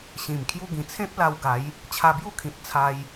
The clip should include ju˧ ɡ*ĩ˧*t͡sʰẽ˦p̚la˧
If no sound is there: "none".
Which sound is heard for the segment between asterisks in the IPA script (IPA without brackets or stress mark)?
ĩ˨˩